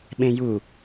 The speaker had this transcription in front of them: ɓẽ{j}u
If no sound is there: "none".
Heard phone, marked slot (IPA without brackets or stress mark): j